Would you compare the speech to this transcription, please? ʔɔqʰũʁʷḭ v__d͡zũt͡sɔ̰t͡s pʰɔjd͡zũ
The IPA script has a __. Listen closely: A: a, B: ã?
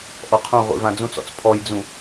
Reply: B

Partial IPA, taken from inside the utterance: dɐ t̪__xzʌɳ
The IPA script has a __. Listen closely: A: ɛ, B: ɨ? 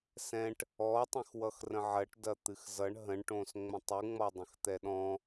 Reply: B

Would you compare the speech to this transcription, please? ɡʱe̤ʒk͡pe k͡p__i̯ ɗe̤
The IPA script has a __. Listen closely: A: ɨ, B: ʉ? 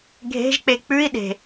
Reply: B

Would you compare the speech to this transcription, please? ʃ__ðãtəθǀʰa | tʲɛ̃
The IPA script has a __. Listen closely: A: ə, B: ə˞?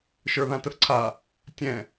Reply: B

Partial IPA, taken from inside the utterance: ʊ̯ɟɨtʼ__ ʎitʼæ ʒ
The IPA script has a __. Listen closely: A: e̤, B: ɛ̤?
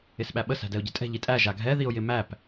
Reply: B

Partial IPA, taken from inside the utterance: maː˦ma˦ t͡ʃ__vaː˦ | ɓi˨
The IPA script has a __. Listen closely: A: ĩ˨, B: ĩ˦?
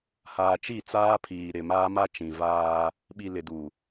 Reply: A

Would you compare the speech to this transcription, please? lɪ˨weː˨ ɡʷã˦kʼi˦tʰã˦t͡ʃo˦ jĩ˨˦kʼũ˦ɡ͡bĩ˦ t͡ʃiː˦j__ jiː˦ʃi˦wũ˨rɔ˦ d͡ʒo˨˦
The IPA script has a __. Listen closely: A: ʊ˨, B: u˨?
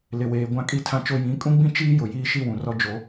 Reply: A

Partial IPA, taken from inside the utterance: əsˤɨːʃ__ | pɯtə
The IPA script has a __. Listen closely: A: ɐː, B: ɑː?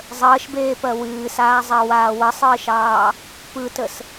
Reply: B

